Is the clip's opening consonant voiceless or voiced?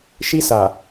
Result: voiceless